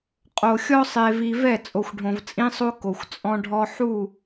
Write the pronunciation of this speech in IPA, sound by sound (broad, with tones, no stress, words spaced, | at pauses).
qʼo˨ xʲɔ˦sˤe˨vi˨vɛ˦˨ t͡sʼo˨xʷɖʱõ˨vt͡sʼĩ˦sˤo˦ ko˨xʷt͡sʼɔ̃˦ɖʱɔ˦ ħu˦˨